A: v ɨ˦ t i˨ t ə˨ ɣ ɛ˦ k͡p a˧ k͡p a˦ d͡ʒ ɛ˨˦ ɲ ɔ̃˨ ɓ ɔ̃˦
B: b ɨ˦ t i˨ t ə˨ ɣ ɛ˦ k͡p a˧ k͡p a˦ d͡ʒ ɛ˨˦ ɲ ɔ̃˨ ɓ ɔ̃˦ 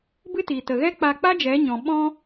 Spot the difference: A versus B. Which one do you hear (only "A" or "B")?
B